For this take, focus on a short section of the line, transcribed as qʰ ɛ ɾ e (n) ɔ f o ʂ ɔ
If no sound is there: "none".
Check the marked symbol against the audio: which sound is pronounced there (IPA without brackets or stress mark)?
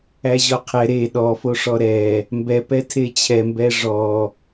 ɗ